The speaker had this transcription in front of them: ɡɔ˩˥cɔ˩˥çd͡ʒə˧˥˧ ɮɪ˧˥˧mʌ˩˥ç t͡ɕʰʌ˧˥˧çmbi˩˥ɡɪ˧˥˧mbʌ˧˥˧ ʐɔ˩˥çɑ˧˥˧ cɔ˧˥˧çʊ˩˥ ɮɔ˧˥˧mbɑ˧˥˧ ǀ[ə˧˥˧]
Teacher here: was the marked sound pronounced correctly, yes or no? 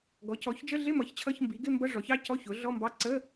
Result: yes